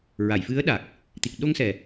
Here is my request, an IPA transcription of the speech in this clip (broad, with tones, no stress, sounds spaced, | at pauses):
ɹ a˨˩˨ j f ɨ˧˥ ə̯ ɗ a˨˩ k̚ | t̪ i˨˩ k̚ ɗ o˧ ŋ s ɛ˨˩